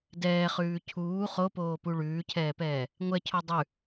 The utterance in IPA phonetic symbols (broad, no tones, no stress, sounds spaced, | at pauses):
d ɛː χ ʉː cʰ uː χ o p oː p u ɭ ʉː cʰ ɛː p ɛː | ŋʷ ɛ cʰ o dˤ ʉ